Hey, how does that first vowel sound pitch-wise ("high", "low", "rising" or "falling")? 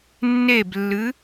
falling